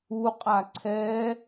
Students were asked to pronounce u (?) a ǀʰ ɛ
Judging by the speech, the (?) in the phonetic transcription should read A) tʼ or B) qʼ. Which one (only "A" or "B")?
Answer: B